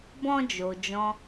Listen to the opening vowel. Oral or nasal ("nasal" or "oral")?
nasal